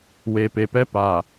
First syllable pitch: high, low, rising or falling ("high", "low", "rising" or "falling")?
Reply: low